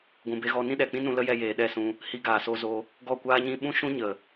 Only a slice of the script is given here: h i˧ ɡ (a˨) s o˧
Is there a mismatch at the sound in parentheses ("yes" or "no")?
yes